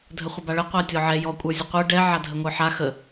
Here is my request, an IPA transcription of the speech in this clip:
dʱ ə χʷ ə b a ɭ ə qʷ a tʲ ɔ ʕ ɛ j ɔ kʷʼ ə˞ zʲ ə qʷ ə˞ ɖ ɛ ʕ a dʱ ə ŋʷ ə˞ ħ a x ə

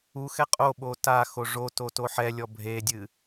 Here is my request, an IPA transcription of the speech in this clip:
u x ɛ qʼ o ɓ o t a x o ʐ o t o t o ħ ɛ lʲ ɔ bʱ e dʲ ɨ

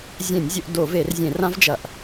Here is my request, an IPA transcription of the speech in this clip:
zʲ ẽ˧˩˧ nʲ zʲ ɵ˧˩˧ ʔ d o˧˩˧ v e˧˩˧ r zʲ ẽ˧˩˧ r ã˦˥ v d͡ʒ ɐ˧˩˧ ʔ

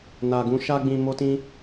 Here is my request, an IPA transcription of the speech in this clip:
n a˨ ɡ ũ˧ ʃ a˧ ɡ͡b ĩ˨ m o˧ t ĩ˧

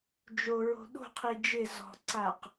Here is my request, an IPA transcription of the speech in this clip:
d͡ʒ o ɹ o̤ ɗ o̤ qʰ i d͡ʒ ɪ z ɔ̤ ǀ a q

